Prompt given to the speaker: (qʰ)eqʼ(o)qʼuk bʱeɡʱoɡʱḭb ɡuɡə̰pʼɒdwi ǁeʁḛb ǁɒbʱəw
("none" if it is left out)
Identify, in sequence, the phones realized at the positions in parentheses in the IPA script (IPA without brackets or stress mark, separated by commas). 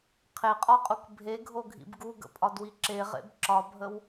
qʰ, ɔ